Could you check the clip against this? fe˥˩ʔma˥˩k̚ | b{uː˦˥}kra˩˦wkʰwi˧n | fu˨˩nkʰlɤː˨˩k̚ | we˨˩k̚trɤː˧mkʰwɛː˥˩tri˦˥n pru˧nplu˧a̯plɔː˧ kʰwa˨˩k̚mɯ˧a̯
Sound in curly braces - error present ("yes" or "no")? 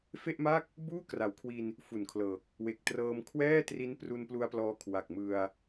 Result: yes